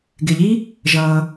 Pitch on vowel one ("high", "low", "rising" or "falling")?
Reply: low